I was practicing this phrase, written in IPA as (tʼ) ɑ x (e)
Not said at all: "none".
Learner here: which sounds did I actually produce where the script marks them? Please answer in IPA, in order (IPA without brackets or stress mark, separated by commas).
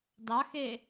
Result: d, e